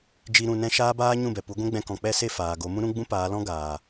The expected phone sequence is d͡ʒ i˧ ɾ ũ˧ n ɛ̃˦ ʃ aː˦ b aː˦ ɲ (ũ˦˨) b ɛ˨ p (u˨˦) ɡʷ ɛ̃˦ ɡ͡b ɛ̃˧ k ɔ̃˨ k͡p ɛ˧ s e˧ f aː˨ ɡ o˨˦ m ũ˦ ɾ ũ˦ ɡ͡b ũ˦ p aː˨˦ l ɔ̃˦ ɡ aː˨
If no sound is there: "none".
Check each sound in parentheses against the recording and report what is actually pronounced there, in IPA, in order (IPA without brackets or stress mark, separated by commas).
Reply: ũ˦˨, u˨˦